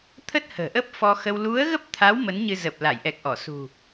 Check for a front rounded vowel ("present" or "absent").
absent